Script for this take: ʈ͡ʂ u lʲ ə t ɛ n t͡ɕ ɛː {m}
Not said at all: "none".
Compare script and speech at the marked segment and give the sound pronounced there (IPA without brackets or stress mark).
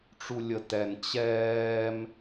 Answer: m